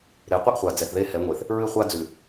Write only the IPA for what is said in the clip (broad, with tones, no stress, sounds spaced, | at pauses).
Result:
ɾ e˨ qʷ ɨ˦ ʔ χʷ a˨ d͡z ɛ˨ θ ð e˦ h ɛ˨˦ ŋʷ e˨ θ | ɹ ɨ˦ χʷ a˦ d͡z ʉ˨